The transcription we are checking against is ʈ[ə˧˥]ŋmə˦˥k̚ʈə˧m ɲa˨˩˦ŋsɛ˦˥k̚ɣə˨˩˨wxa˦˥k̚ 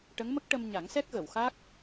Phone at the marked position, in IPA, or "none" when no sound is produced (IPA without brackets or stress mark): ə˧˥